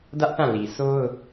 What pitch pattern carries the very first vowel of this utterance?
high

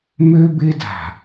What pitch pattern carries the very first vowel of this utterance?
high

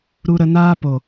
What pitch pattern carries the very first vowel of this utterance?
high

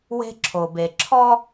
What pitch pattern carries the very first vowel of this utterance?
high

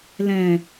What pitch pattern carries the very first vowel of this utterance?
low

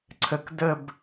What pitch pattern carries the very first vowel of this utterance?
low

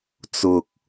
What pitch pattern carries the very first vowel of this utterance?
low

